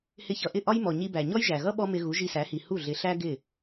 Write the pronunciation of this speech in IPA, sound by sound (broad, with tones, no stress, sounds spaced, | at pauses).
h ɪ˧ ç ʌ˩ ʔ ɪ˥˩ ʔ ɒ˥ j m ɔ˩ ɲ i˧ b æ˩ ɲ ɔ˥ j ʒ æ˩ ɣ ʌ˥ ɓ ɔ˥ m ɪ˧ ɣ u˩˥ ʒ i˧ s æ˩˥ h i˩ h u˥˩ ɮ ɪ˩˥ ɬ æ˥ ɡ ɪ˥˩